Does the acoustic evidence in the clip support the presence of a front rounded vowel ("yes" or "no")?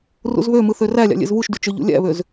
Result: yes